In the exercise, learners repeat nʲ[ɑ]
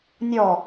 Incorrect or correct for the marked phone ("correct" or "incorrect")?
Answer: incorrect